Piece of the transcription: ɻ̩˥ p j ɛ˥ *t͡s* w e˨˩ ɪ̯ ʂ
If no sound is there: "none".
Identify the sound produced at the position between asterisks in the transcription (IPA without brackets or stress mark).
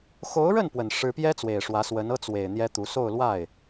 t͡s